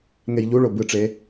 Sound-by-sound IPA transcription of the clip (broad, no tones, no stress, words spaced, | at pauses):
ŋejʎuɭo bɯʈ͡ʂe